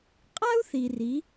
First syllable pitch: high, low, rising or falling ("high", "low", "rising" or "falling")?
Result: high